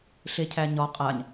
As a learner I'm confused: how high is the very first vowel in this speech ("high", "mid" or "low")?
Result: mid